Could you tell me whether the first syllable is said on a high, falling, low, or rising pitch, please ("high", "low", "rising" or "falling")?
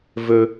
high